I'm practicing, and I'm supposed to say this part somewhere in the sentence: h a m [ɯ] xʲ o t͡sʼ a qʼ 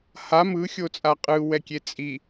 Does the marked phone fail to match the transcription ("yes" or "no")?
no